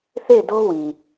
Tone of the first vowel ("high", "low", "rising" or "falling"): falling